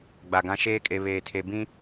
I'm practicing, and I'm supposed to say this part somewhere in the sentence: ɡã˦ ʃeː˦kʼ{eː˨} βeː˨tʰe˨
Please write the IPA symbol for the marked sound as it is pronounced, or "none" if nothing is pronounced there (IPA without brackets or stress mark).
e˨